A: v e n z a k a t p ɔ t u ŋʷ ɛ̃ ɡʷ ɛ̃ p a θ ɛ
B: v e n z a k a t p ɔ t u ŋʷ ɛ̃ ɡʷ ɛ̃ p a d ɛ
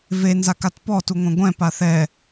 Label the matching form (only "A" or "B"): A